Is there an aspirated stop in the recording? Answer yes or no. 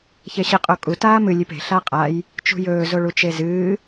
no